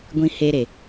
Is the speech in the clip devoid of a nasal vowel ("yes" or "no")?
no